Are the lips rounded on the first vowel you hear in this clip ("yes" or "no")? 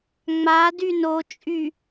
no